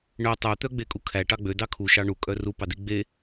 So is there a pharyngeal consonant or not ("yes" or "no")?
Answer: no